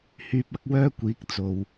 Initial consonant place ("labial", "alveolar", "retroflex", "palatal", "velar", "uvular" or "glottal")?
glottal